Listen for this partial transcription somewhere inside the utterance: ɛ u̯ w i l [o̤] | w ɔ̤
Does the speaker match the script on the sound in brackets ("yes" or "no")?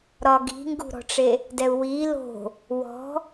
yes